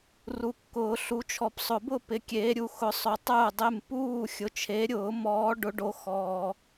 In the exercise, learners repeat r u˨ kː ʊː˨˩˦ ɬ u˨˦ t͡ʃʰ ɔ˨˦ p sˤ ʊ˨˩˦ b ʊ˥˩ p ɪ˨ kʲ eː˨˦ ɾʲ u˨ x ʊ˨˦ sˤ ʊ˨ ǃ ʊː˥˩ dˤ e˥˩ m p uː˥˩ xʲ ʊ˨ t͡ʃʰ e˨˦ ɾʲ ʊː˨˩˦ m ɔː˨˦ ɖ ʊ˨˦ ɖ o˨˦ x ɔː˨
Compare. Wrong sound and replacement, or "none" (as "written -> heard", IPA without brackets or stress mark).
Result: ǃ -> tˤ